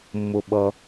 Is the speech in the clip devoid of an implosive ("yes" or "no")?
no